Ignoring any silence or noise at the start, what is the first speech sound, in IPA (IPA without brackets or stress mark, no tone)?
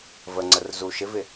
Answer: v